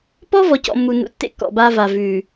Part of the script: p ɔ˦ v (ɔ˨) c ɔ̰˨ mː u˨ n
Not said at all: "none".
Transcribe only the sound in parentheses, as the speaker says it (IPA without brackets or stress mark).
ɔ˨